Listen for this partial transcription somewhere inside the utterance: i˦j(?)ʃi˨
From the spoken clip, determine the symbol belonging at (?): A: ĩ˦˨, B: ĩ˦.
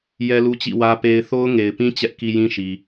B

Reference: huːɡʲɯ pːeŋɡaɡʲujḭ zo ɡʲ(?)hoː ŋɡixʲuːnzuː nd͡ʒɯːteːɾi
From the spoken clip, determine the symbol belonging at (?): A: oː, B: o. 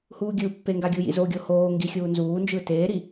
B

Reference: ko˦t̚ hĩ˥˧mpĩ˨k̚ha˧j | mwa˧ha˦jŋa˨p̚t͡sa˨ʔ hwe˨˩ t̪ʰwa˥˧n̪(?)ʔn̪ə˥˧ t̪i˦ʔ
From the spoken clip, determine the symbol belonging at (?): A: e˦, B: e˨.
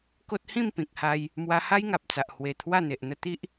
B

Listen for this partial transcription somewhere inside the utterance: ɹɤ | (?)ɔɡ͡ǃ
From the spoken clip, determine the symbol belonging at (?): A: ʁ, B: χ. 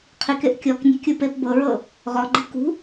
A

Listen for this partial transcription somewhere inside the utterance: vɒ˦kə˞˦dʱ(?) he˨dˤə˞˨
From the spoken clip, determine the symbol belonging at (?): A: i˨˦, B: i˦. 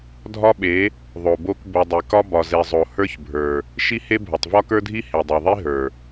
B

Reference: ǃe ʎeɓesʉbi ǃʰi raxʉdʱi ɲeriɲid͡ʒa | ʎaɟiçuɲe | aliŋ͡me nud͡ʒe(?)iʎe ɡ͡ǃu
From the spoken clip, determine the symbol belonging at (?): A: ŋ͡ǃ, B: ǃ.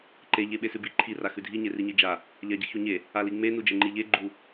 A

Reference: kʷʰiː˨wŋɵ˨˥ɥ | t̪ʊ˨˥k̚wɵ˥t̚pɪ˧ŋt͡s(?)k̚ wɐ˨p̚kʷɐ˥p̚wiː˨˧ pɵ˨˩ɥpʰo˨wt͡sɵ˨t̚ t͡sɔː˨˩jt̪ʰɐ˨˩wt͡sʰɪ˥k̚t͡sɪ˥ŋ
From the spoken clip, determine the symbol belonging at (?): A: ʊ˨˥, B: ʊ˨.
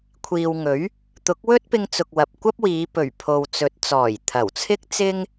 B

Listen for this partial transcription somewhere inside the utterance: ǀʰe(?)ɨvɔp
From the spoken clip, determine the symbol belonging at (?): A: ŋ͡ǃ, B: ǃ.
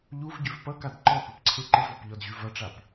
B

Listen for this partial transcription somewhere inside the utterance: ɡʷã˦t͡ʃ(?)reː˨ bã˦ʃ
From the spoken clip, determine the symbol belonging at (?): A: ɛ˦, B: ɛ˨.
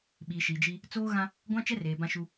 A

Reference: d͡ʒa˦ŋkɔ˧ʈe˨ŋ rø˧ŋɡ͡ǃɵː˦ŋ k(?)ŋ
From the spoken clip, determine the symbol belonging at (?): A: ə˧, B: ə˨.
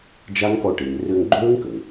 B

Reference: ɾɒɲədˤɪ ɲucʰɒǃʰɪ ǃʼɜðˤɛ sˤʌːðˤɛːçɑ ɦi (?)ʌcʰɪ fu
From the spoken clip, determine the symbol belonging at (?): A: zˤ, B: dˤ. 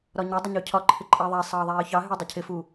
B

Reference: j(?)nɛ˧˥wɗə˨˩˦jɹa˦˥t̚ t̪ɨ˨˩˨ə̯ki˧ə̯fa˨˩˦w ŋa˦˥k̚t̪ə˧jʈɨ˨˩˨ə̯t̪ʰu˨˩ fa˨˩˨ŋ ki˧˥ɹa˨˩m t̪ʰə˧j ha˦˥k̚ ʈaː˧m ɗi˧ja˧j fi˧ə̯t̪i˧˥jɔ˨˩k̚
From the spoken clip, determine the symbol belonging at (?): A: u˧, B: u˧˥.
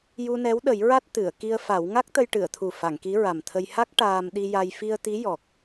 A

